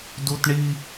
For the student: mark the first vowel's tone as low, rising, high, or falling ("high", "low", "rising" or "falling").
high